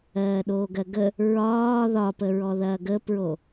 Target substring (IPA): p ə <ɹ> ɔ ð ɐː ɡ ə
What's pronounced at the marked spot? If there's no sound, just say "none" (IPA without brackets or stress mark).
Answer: ɹ